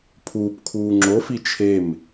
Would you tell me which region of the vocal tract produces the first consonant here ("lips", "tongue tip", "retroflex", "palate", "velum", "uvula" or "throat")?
lips